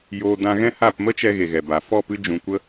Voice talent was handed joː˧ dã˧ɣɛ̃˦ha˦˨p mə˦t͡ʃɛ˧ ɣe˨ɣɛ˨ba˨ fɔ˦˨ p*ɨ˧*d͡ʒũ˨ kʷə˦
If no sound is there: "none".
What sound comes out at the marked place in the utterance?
ɨ˧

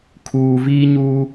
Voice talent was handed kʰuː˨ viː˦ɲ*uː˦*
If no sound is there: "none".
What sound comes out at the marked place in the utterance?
uː˦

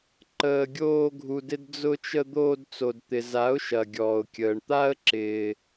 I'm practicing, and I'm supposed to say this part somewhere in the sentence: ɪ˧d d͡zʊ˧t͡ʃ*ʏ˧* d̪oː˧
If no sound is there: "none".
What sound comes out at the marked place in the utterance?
ə˧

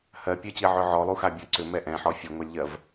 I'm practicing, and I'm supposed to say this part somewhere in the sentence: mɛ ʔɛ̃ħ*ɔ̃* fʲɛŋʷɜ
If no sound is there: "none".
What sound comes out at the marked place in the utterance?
ɔ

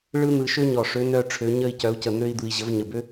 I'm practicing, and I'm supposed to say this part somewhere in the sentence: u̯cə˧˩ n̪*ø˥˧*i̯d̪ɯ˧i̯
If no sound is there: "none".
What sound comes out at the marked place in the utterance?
ø˥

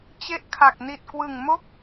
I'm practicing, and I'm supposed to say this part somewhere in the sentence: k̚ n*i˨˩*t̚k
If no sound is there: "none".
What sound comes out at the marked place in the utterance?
i˨˩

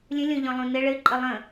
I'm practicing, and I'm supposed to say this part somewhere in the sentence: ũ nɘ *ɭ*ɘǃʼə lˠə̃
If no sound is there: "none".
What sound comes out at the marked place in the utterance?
ɭ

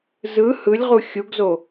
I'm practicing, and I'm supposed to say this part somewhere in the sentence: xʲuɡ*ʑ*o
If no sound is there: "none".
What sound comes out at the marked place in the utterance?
z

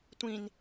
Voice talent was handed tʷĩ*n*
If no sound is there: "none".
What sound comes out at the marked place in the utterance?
n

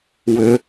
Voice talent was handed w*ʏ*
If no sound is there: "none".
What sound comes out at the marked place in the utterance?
ʏ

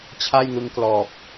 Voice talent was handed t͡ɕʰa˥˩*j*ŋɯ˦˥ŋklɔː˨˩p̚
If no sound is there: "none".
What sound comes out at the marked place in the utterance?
j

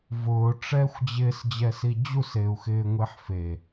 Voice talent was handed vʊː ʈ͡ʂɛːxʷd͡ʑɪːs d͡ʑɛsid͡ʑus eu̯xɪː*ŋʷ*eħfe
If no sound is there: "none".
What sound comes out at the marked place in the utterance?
ŋʷ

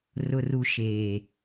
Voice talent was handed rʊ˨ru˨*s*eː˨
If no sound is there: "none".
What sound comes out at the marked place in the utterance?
ʃ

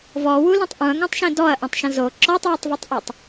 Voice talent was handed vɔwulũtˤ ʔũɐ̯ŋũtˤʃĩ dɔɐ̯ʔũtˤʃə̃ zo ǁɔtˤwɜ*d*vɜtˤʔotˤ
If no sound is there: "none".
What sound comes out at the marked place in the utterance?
tˤ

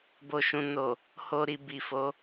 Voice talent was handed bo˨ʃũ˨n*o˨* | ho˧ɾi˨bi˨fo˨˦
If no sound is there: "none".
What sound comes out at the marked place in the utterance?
o˨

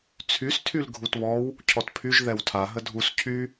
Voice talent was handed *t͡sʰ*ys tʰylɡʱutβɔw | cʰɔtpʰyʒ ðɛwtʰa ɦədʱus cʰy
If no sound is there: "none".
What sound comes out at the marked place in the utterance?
t͡sʰ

